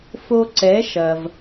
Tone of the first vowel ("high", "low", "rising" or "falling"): high